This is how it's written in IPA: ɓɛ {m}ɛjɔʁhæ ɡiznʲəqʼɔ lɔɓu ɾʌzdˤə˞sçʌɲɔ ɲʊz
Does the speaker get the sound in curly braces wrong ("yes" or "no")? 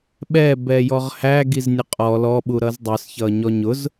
yes